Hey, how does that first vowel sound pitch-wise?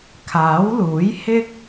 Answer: rising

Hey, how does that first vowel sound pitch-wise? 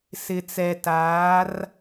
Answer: low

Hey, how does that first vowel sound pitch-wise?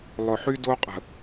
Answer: low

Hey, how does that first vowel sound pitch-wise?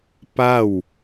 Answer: falling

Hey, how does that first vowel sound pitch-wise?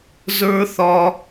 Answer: high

